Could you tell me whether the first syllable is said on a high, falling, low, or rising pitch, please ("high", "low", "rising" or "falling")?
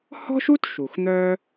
high